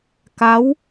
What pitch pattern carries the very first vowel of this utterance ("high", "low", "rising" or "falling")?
rising